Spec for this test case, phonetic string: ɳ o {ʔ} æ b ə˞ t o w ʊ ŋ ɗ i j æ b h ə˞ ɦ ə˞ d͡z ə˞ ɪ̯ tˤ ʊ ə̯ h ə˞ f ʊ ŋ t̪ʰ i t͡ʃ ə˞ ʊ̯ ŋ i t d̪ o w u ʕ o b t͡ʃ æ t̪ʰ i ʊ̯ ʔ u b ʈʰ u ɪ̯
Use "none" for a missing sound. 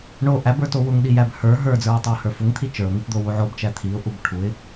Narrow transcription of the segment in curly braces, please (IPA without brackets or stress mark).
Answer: ʔ